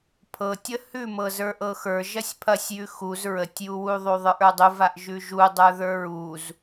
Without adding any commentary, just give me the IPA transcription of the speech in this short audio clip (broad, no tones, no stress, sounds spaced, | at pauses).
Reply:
pʰ ɤ tʲ ə h ʉ m ɤ z ə˞ ʔ ɤ x ə˞ ʒ ɐ sʲ pʰ ɐ sʲ j ʉ x u z ɹ ə tʲ j u w u ðˤ u ðˤ ə˞ ʔ ə˞ dˤ u v a ʔ ʒ ʉ ʒ u dˤ ə˞ ð ə˞ ɹ u z